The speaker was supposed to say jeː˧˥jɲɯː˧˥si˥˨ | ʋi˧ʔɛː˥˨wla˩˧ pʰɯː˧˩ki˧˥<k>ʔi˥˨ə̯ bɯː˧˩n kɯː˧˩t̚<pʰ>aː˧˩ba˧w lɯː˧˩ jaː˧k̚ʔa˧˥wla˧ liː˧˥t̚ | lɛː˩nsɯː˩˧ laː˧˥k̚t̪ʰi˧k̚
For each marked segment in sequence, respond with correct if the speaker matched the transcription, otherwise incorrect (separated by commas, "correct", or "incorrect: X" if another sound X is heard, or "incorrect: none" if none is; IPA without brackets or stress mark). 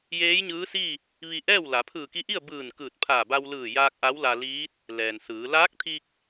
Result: incorrect: none, correct